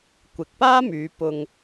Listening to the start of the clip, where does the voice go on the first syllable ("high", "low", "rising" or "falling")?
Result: low